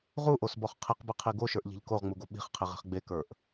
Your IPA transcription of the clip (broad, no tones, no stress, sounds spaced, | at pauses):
ʁ u ʔ o s b ɔ χ qʰ i q b e qʰ i ɡ o ʃ ə˞ ʔ ʎ i̤ ʎ k o ʁ ŋ͡m u ɡ o ɓ i̤ χ qʰ i ʁ e̤ χ ɡ͡b e k ə˞ ʔ